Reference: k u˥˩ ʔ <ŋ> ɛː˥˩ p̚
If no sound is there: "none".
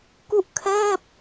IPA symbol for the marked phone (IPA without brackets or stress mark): kʰ